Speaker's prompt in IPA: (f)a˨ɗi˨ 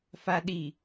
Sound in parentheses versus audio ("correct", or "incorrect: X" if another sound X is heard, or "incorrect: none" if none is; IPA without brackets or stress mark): correct